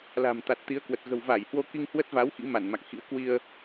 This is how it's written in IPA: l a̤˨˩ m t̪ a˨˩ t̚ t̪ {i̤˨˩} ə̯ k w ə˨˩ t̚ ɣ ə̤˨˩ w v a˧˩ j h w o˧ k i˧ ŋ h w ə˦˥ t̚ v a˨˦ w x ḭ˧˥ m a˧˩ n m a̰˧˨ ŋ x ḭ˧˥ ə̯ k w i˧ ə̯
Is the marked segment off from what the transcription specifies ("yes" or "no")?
yes